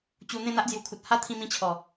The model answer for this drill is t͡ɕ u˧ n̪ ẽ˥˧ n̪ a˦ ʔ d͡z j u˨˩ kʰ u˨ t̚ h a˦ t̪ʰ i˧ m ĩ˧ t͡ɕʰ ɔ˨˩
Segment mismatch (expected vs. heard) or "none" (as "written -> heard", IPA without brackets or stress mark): i˧ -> ĩ˧